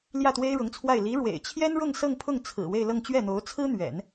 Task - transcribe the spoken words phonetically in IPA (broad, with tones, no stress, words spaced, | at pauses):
ljä˥˩t̪we˥ɪ̯ɻʊ˧˥ŋt͡sʰwa˥˩ɪ̯ li˧˥ ɻwḛ˨˩ɪ̯ t͡ɕʰjɛ˥nɻʊ˥˧ŋsɤ˥˧ŋpʰʊ˥˩ŋ t͡sʰɹ̩˨˩ we˥˧ɪ̯lɤ˥˧ŋ t͡ɕɥɛ˥˩n̪o˧˥ʊ̯ t͡sʰɹ̩˥ n̪ɥɛ̰˨˩˦n